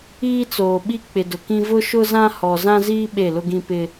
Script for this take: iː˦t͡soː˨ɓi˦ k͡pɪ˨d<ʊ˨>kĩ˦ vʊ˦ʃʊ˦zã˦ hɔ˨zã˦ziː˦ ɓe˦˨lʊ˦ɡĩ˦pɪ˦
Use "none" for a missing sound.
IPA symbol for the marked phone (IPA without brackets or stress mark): ʊ˨